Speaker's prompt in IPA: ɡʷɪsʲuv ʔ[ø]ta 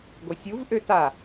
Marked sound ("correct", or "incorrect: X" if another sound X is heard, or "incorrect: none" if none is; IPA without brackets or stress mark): correct